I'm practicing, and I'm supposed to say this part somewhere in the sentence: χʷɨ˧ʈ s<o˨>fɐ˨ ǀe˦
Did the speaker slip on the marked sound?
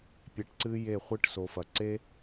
no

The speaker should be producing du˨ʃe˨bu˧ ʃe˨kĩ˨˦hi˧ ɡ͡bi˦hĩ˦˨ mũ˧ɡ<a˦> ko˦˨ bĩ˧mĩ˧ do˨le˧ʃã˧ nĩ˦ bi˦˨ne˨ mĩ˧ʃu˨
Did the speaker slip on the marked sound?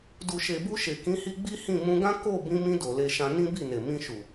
yes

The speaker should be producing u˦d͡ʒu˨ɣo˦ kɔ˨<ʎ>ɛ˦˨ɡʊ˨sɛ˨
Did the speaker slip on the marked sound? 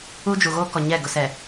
yes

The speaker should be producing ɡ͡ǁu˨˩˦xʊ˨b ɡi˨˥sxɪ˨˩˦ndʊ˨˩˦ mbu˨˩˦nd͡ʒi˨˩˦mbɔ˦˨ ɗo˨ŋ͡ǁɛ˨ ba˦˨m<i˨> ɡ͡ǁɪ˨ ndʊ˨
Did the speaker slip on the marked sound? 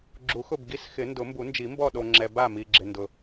no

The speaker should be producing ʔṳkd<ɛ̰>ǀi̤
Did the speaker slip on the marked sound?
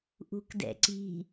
no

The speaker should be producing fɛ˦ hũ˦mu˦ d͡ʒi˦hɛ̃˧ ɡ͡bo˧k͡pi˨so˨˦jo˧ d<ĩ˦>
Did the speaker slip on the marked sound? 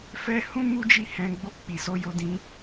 no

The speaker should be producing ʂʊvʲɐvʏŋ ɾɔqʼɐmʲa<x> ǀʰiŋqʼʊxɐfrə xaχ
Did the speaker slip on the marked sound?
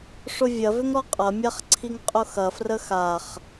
yes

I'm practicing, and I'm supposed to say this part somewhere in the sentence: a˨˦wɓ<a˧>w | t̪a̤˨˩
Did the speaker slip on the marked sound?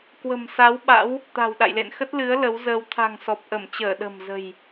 yes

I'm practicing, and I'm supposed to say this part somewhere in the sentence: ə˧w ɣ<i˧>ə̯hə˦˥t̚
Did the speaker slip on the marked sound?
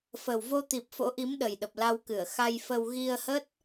no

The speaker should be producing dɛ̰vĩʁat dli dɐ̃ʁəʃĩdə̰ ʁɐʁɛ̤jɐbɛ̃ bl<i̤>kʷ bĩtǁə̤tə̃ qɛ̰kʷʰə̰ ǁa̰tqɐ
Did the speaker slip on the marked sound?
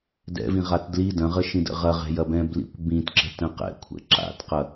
yes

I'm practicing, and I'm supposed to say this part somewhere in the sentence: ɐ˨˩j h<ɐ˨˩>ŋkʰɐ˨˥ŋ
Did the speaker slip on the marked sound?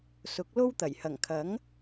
no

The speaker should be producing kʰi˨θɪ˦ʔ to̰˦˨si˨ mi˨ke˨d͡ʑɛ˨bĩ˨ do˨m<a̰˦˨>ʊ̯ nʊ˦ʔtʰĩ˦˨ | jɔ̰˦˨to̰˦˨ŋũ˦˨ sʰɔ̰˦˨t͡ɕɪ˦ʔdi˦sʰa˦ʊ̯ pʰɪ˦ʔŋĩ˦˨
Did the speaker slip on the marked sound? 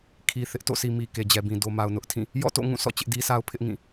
yes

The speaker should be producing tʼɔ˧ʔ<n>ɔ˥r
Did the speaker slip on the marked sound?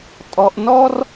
no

